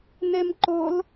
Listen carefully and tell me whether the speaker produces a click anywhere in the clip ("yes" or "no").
yes